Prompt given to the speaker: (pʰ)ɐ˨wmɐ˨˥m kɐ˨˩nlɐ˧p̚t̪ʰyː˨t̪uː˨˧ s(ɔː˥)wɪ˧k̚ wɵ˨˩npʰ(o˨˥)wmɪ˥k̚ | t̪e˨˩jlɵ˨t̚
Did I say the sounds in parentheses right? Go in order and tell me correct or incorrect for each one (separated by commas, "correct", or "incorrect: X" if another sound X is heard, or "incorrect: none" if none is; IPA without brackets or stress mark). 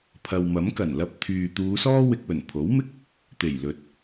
correct, correct, correct